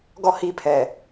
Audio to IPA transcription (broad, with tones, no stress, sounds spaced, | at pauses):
ɡ ɔ˦ h i˦ pʰ ɛ˨